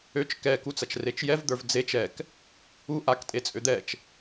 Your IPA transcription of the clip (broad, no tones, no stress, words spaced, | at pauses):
øt͡ʃ kɛkut͡sɐt͡ʃ ret͡ʃjɛv d̪ə˞vd͡zet͡ʃ ɛk | u ʔaktʼet͡sʼø d̪ɛt͡ʃ